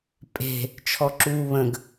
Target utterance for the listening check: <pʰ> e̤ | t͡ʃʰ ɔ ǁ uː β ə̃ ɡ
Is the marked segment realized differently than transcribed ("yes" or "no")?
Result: yes